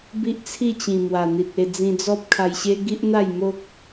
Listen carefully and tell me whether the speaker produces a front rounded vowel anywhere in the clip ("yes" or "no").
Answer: no